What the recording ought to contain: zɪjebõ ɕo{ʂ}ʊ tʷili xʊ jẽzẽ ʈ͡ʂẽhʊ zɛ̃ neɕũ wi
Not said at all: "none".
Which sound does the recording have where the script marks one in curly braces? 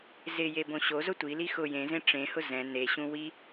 z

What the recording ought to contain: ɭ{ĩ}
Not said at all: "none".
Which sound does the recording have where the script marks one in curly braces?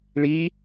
i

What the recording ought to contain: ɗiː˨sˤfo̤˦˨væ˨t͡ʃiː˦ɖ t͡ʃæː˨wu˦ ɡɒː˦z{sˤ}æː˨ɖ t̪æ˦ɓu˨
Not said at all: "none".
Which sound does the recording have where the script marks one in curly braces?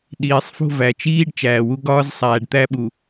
sˤ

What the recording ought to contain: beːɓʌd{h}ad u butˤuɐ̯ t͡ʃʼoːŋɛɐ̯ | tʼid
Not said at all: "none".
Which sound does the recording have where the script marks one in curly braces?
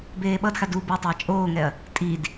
x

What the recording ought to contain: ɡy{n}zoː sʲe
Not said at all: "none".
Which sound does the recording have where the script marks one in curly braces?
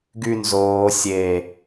n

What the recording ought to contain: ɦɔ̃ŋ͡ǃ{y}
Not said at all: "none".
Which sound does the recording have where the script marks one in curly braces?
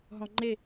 e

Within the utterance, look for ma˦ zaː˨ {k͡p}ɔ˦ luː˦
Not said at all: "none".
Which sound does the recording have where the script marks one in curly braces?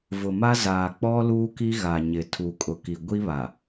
k͡p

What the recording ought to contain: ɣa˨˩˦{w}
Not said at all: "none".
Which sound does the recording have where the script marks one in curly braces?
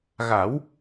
w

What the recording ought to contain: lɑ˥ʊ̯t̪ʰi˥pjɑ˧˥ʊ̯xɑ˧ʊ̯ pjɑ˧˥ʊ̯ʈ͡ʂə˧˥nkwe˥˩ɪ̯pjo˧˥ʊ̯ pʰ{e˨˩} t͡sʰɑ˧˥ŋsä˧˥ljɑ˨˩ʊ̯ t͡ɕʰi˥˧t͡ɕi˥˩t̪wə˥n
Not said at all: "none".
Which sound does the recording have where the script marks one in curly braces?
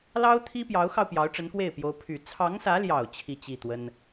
y˨˩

